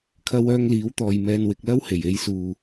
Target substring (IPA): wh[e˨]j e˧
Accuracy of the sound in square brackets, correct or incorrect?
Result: incorrect